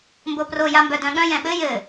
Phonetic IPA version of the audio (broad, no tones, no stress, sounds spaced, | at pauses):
m b o p r o j a m b œ d œ̃ ɠ œ̃ j ɛ̃ ɓ ɘ j ɘ